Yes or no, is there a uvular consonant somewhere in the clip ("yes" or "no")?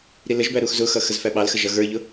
no